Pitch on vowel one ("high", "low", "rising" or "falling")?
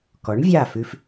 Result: rising